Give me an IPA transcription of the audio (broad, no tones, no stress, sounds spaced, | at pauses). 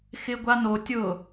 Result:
x ɪ ɡʷ a n o tʲ ʊ